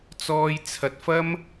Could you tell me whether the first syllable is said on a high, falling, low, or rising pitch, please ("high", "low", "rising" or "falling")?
high